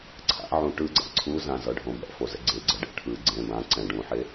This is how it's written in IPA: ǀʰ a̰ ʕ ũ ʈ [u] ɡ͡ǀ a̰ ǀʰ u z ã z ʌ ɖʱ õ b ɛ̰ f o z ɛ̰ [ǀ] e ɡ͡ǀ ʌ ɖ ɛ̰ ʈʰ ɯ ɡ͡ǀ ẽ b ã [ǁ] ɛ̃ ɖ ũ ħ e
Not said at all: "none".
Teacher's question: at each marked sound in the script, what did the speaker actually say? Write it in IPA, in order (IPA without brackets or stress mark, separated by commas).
ɯ, ɡ͡ǀ, ǀ